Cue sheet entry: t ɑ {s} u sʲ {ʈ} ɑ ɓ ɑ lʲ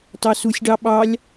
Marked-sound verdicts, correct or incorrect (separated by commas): correct, incorrect